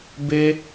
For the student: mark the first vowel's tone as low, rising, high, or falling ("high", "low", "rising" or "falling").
high